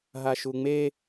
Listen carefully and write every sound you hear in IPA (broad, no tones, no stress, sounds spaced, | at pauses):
ɦ a ʃ u ŋ͡m e